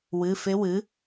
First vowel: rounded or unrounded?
unrounded